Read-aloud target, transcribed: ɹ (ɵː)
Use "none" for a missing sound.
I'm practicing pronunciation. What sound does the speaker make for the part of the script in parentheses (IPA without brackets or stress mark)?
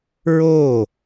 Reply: oː